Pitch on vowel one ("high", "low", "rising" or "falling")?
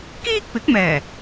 high